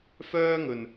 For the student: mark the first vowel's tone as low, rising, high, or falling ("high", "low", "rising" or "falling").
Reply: high